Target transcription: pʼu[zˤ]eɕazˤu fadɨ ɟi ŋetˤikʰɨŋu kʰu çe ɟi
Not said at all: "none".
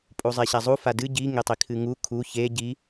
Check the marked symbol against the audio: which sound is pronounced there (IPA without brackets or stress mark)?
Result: zˤ